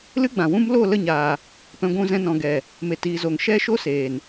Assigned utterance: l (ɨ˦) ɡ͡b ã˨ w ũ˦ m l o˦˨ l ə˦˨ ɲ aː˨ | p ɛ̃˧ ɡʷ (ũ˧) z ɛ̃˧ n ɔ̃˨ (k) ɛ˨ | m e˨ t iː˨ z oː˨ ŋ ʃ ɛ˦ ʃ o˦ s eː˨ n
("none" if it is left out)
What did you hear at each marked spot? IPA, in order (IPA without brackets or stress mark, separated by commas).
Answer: ɨ˦, ũ˧, ɡ